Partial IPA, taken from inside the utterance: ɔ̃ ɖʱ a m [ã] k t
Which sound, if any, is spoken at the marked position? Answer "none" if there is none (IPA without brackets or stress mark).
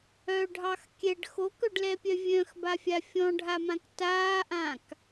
ã